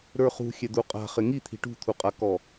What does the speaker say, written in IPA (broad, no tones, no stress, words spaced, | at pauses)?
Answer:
ɾə˞χṳ xʲɛd̪uqʼa̤ χɪŋit̪ʰi̤ ʈṳt̪ʰuqʼakɔ